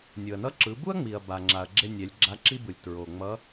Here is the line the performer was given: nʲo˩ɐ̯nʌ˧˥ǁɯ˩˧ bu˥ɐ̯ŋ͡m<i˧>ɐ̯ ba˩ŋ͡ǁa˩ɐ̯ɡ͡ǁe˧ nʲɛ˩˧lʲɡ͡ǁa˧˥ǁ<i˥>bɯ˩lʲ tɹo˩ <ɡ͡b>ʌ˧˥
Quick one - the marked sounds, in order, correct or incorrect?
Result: incorrect: i˩, correct, incorrect: ŋ͡m

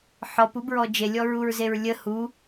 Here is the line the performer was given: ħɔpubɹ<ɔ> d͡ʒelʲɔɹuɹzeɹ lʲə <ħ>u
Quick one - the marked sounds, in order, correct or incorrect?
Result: correct, incorrect: h

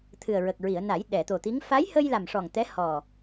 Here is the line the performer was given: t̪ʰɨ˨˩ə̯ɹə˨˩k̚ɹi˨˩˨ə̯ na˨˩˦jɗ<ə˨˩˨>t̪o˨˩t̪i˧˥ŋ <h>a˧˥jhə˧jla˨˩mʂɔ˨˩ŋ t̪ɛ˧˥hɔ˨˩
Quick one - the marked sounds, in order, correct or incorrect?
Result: incorrect: ɛ˨˩˨, incorrect: f

